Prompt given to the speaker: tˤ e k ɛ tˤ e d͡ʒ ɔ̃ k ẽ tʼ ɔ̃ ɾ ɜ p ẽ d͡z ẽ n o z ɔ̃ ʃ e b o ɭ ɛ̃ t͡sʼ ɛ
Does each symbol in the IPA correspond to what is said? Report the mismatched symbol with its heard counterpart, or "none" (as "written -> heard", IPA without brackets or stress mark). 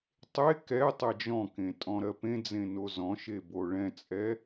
none